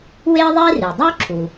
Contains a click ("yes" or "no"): yes